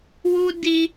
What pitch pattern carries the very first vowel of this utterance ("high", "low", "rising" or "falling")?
high